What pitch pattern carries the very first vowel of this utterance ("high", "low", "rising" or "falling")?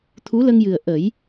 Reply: rising